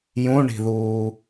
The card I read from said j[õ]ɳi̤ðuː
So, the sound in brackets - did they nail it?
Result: no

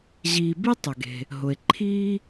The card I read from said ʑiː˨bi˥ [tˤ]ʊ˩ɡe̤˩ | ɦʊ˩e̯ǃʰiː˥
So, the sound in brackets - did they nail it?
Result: yes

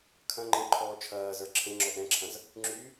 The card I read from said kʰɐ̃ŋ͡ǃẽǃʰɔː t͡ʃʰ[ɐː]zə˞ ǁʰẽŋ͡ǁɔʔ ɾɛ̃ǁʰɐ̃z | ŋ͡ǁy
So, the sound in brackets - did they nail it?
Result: yes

